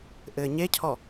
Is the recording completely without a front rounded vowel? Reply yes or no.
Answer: yes